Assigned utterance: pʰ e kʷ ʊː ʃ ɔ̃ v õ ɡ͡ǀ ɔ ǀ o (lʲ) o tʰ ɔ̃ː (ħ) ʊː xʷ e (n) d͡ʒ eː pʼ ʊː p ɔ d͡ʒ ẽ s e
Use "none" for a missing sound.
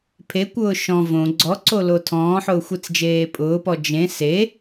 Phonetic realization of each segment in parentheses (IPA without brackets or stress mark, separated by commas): l, ħ, t͡s